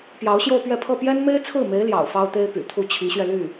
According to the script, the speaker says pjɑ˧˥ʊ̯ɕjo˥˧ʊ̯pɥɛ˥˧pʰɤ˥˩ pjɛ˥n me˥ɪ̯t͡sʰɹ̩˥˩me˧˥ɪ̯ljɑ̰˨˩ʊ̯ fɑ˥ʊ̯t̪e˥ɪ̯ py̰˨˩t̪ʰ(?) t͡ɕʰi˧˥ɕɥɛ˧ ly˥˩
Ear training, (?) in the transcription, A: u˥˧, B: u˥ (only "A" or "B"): B